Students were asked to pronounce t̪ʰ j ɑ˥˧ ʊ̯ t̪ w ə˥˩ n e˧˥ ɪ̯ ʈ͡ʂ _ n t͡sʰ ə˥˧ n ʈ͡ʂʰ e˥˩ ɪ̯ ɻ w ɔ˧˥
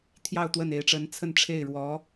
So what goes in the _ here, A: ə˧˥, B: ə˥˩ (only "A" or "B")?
A